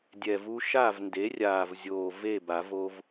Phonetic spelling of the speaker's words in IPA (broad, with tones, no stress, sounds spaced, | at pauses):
dʲ ɛ˨˩ v u˦ ʃ a˥˨ v n d e˩˥ rʲ aː˨˩ v zʲ oː˨˩ v e˥˨ b a˨˩˦ v o˦ v